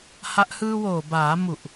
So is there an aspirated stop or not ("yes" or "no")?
no